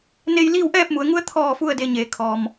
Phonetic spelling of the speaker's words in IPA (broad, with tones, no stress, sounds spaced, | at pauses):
n e˧ j l iː˥˨ w ʔ ɛː˥˨ p̚ m u˩˧ ə̯ ŋ u˧˥ ə̯ t̪ʰ ɔː˧˩ f u˥˨ ə̯ d e˧ ɲ eː˩˧ kʰ ɔː˩ m